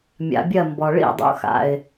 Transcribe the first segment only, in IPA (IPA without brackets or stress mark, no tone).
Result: mʲ